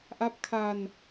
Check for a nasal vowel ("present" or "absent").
absent